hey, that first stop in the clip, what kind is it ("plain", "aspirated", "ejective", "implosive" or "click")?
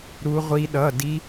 implosive